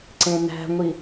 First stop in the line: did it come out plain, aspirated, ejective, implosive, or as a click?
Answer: click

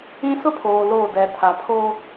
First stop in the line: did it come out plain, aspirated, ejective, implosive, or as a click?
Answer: aspirated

